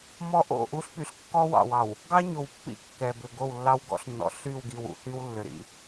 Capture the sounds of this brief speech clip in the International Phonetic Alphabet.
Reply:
m ɔ˦ ʔ o̰˦˨ ʔ u˦ ɬ p y˨ ɬ kː ɔ˦ w ɑ̰˨ w ɑ˨ w | ɡ ɑ˦ ɲ o˨ w pː ḭ˦ kː ɛ˨ b ʏ˨ ɡ o˦˨ w lː ɑ˦ w ɡ ɔ̰˦ ɬ nː ɔ̰˨ ɬ y˦˨ w ɡ i˨ w ṵ˦ h y˦ w lː ʏ˨ ɾ ḭ˦

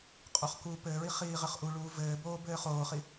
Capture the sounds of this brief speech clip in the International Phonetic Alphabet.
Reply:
qʼ o χ k uː p ɘː ɹ i χ iː ʁ ɘ χ ʔ u ɭ uː v ɘː b oː b ɘː χ oː χ i

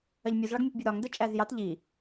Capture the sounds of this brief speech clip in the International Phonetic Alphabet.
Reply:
ɜ ʎ mʲ u z ɭ ɑ ɡ mʲ ə t bʲ u ɾ ɒ ŋ d ɛ t͡ʃʼ æ z j ɑ t ʎ i

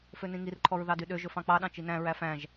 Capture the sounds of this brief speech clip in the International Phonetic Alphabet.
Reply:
f ø n ĩ ŋ i r ǃʰ ɔ ɹ ð ɑ d y ɗ ø ʒ ɵ f ɑ̃ k͡p ɑ ɗ ɑ̃ t͡ʃ i n æ̃ ɹ æ f æ̃ ʒ

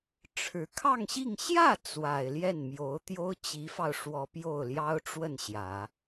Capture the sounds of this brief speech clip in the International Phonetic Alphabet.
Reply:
ʈ͡ʂʰ ɻ̩˧˥ kʰ ɑ˥˧ ŋ ɕ i˥˧ ŋ ɕ j ä˥˩ t͡s w a˨˩ ɪ̯ l j ɛ˥˩ n m j o˧˥ ʊ̯ t̪ j o˥ ʊ̯ t͡ɕ i˧˥ f ɑ˧ ʊ̯ ʂ w ɔ˧˥ p j o˥˩ ʊ̯ l j ɑ˥ ʊ̯ ʈ͡ʂ w ə˥˩ n ɕ j ä˨˩˦

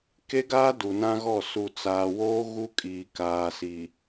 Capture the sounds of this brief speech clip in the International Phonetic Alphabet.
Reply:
k e˦ ɡ aː˦ d u˨ n ã˦ ɣ ɔ˦˨ s u˨ t͡s aː˨ w oː˦ ɣ u˦ kʼ iː˨ k aː˨ s i˨

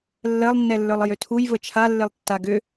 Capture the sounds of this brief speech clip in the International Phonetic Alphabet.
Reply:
lː ɜ lˠ nː ɛ lː ə˞ lˠ ə j ʏ tʰ u j v ə t͡ʃʰ a lː e lˠ tː a ɡ ʏ

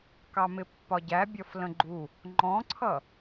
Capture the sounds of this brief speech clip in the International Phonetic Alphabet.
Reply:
k ɑ m ɪ pː ɒ ɟ æ bʲ ɒ f l ə̃ ɡ͡ǃ u | ŋ͡ǃ ɔ̃ ǀʰ ʌ

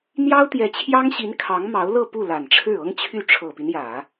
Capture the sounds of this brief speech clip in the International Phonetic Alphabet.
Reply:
n̪ j ɑ˥ ʊ̯ t̪ j ɛ˧˥ t͡ɕʰ j ɑ˥ ŋ ɕ i˧˥ n kʰ ɑ˧˥ ŋ m ɑ˧˥ ʊ̯ l ɤ˥˧ p u˥˩ l a˨˩ n ʈ͡ʂʰ ɻ̩˥˩ ɤ˥ ŋ t͡ɕʰ y˥˩ ʈ͡ʂʰ ɤ˨˩ p i˦ n j ä˨˩˦

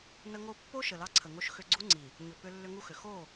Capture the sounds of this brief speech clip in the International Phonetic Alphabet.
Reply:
n ə˦ ŋ o˦ pː o˦ ʃ ə˨ l ɑ˦ ǀʰ ə˨ ŋ o˦ ʃ x ʏ˦ ɡ͡ǀ u˦ ŋ͡ǀ i˨ | ɲ ʏ˨ p ʏ˦ lː ʏ˦ ŋ u˦ x ʏ˨ x o˦˨

